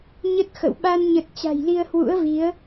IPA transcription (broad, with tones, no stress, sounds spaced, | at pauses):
ɲ ə˦˥ t̚ x ə̰˧˨ w ɓ a˧ n ɲ ə˨˩ t̚ t͡ɕ a̤˨˩ j l i˧ ə̯ h w ṵ˧˥ ə̯ v i˨˦ ə̯